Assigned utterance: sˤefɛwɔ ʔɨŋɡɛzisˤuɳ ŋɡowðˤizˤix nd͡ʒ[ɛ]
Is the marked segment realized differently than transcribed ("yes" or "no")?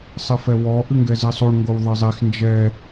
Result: no